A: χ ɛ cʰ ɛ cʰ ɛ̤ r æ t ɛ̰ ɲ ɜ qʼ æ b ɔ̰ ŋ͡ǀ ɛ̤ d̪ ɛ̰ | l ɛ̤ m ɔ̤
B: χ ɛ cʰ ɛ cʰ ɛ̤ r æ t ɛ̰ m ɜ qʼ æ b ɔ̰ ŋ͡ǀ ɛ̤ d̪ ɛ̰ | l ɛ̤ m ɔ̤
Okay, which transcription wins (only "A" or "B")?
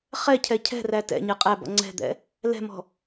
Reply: A